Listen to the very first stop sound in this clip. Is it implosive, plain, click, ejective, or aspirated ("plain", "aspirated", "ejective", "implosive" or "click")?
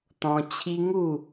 plain